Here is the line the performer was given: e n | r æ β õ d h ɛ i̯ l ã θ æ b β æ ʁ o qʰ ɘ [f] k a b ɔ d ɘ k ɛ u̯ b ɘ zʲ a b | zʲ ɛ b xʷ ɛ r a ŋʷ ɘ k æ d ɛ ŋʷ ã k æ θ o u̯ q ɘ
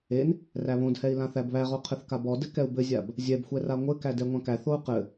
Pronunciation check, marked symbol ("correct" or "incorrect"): incorrect